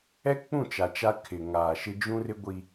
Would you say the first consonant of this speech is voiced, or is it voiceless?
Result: voiceless